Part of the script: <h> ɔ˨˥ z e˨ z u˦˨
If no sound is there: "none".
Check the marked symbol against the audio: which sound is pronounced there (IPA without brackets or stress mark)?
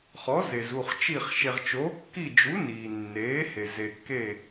χ